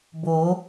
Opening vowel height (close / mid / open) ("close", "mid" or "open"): mid